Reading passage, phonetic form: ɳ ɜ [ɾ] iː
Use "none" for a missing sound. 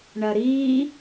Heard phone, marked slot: ɾ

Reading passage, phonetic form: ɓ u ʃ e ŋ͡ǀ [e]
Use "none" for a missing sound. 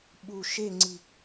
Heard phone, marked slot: i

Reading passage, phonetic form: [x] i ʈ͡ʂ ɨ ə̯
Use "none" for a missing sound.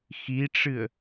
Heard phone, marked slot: x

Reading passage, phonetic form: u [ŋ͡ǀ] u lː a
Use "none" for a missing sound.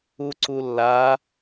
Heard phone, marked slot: ǀ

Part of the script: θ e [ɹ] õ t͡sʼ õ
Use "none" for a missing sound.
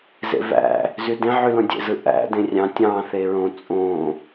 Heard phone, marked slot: ɹ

